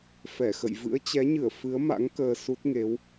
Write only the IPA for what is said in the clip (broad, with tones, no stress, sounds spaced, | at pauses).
f ɛ˧˩ x ə̰˧˨ j v ɨ̰˧˥ ə̯ t͡ɕ ɛ˨˦ ɲ ɨ˧˩ ə̯ f ɨ˨˦ ə̯ m a̰˧˥ ŋ k əː˧ s u˦˥ t̚ ŋ e˨˦ w